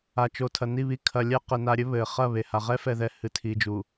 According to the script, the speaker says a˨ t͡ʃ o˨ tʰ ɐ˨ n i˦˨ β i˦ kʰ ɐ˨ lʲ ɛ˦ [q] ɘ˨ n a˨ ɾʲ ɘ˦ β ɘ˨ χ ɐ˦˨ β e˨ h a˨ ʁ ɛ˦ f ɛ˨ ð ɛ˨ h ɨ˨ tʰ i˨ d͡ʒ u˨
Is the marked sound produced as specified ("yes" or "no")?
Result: yes